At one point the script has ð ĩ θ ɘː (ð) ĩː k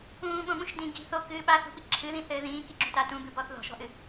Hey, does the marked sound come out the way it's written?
yes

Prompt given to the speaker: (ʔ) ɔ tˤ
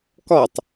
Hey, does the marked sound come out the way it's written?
no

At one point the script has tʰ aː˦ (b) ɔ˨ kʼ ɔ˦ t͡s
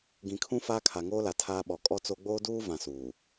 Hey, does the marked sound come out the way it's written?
no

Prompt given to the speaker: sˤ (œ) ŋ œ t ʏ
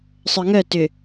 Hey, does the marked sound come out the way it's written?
yes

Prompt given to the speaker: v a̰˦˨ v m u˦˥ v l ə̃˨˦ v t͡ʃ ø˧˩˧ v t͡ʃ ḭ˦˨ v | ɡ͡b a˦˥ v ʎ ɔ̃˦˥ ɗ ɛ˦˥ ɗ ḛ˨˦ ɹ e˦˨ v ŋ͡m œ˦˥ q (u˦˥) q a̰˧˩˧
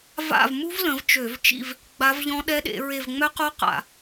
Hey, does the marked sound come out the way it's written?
no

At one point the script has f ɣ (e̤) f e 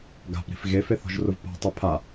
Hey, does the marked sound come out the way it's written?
no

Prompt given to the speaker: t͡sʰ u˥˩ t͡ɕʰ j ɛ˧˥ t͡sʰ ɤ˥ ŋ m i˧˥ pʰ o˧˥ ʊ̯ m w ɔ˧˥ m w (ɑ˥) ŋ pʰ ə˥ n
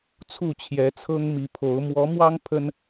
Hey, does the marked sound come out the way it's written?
yes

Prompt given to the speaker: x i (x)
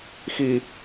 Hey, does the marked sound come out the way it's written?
no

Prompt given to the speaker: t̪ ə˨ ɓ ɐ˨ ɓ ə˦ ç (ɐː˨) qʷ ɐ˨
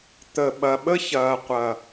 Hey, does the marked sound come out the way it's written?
yes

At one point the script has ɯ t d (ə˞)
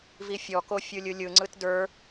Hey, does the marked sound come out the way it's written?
yes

